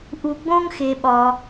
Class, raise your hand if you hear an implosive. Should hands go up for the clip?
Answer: yes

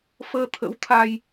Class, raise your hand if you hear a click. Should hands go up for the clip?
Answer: no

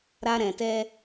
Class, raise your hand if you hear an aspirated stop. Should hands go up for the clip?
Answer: no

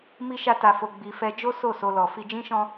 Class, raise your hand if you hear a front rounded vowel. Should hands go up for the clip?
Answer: no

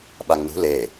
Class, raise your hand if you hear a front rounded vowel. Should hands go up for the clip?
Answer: no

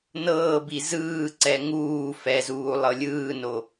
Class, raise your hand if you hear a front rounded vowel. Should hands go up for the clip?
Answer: no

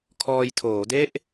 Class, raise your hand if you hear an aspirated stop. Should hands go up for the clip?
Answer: yes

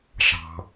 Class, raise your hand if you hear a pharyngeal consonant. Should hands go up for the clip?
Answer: no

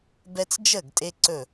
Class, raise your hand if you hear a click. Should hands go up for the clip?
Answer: yes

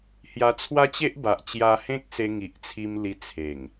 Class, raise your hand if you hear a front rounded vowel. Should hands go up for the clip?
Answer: no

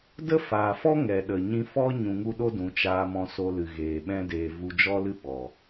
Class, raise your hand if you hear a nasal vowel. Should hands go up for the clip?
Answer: yes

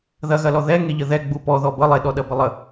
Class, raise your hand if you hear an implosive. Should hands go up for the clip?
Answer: yes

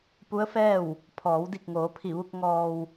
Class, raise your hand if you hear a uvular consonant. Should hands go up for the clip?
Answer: no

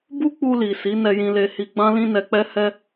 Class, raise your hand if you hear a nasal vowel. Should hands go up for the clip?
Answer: yes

